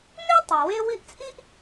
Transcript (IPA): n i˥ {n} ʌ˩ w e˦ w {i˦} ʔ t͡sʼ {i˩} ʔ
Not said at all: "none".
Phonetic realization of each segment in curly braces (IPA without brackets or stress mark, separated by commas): tˤ, i˦, i˥